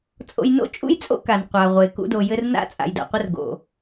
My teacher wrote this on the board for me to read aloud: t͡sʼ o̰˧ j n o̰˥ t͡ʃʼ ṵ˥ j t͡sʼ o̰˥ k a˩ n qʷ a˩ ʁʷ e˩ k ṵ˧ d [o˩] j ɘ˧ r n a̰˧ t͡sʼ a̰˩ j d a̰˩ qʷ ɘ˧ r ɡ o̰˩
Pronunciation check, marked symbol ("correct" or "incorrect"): correct